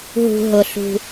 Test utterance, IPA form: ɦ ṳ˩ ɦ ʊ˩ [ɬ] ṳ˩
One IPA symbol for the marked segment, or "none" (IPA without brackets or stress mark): ɬ